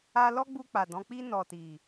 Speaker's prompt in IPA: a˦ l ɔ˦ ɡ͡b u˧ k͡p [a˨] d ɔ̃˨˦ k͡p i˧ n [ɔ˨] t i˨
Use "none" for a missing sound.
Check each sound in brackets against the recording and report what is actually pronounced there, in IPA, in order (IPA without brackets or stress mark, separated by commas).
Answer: a˨, ɔ˨